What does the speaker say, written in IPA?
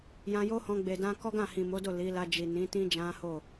j ã˧ j o˦ h ɔ̃˧ ɡ͡b e˨ d ã˧ k ɔ˦ ɡ ã˦˨ h ĩ˨ m o˨˦ d o˦˨ l i˨˦ l a˧ d͡ʒ i˨ n ĩ˨˦ t ĩ˦ d͡ʒ ã˦ h o˦˨

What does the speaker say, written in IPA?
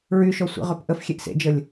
ɹ y ʃ ɔ sʷ ḭ ʁ ø p ʔ ə f xʲ e ʔ s ḛ d͡ʒ ə lʲ

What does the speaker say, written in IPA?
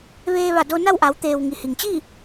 ʋ eː˧ ʋ a˧˩ d o˧ n a˥˨ w ʔ a˩˧ w t̪ eː˩ w ŋ i˩ h i˩ ŋ t͡ɕ i˥˨

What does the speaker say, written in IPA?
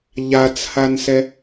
ʎ a t͡s h a n s ɛ

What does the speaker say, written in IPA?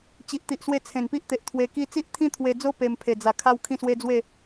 t͡ɕ i˨ ʔ t̪ i˨ ʔ s w e˧ t͡sʰ ẽ˨˩ n p i˦ ʔ t̪ e˨ ʔ t̪ʰ w e˧ k i˦ t͡s i˦ ʔ t̪ʰ ĩ˦ t̪ʰ w e˧ d͡z o˦ p e˧ m pʰ e˨˩ d͡z a˨˩ kʰ a˦ w kʰ ĩ˥˧ s w e˦ d͡z w e˥˧

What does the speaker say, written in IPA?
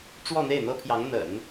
ʈ͡ʂ w ɔ˥˧ n̪ e˥˩ ɪ̯ n̪ ɤ˥ pʰ j ɑ˧˥ ŋ n̪ ə̰˨˩˦ n

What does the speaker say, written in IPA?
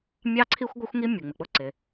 mʲ ɑ˥ ǀʰ i˥ xʷ ɡʷ ʌ˥ xʷ ŋ i˥ mʲ u˩ ŋ͡m ɪ˩ k͡p ʊ˥ ǀ ɪ˩

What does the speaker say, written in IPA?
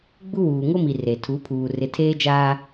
ɡ͡b u˦ w uː˨ ŋ o˦ m i˨ r e˨ tʰ u˨˦ pʰ uː˨ r ɪ˨ tʰ eː˦ d͡ʒ aː˦

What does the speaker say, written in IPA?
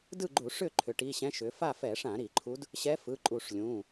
d ɯ˥˨ ɡ͡ǃ u˧˩˧ ʂ ʏ˥˨ ǃʰ ʏ˩˧ ʈ i˩˧˩ ɕ ɛ̃˧˥ ʃ ʏ˩˧ f a˥˨ f ɛ˧˩˧ ʂ ã˧˩˧ ɾ i˧˩˧ ǃʰ u˧˥ d | ɕ ɛ˧˥ f ɯ˩˧˩ ǃʼ u˧˩˧ ʂ lʲ ũ˩˧˩

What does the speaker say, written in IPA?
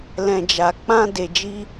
l ɛ̃˨ d͡ʒ a˨ k͡p ã˧ d e˨ d͡ʒ i˧

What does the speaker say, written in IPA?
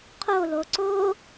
qʰ o l o ǀ o

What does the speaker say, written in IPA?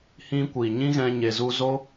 h ĩ˦ kʷ iː˨ ɲ ĩ˦ ɣ ɛ̃˧ ɲ e˧ z u˦ z o˦

